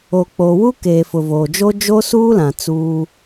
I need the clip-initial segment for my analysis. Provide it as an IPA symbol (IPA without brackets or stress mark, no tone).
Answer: o